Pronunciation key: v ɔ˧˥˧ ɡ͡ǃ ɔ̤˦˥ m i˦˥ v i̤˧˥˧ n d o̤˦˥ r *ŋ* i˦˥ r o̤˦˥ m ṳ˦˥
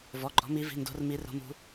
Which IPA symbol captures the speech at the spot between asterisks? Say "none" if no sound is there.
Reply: m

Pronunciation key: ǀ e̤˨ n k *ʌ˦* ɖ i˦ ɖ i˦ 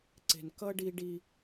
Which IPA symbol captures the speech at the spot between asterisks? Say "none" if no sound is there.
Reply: ʌ˦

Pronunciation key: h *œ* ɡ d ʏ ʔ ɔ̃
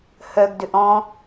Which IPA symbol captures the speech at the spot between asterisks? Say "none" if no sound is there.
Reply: œ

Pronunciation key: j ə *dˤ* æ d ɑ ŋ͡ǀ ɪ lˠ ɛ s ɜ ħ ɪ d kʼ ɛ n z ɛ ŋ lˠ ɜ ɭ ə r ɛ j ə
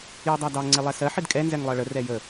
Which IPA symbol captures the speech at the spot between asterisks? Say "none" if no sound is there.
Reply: dˤ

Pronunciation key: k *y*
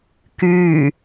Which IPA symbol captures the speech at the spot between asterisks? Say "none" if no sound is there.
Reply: y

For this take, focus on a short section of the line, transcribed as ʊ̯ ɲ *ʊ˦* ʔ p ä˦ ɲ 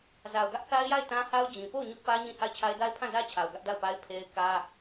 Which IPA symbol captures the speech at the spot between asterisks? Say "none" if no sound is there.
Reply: ʊ˦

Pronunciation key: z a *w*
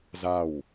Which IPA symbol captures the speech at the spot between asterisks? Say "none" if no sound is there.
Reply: w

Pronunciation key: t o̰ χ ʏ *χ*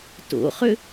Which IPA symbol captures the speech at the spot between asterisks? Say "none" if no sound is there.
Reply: none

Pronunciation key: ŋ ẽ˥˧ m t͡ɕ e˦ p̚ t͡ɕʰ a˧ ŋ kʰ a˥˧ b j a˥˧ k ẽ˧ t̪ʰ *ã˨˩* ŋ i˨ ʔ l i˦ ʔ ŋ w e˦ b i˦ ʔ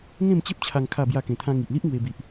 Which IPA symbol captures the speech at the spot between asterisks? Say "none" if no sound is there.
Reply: ã˦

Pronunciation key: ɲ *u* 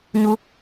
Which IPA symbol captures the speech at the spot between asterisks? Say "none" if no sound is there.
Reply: u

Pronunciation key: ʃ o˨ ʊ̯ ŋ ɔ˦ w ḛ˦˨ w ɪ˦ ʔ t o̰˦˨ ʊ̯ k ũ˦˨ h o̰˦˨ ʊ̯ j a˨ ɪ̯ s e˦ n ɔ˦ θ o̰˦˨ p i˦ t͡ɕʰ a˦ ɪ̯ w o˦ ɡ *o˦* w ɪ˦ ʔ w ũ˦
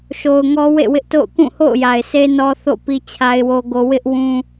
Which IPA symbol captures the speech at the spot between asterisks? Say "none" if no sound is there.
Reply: o˦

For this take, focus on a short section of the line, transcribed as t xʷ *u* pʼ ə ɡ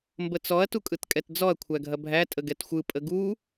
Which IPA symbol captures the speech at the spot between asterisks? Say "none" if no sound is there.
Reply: ɯ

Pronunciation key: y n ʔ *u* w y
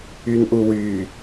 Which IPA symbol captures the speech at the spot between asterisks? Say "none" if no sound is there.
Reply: u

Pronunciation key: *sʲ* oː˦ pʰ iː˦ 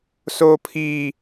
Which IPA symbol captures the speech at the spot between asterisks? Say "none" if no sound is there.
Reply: s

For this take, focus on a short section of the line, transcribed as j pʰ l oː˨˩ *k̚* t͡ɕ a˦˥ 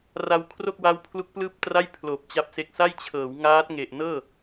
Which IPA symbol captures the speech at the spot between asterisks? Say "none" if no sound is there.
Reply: p̚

